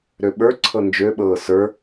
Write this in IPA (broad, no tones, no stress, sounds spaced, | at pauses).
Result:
ɾ ø ɓ ə˞ ǀʰ ɤ n d͡ʒ ø ɓ ɤː s ə˞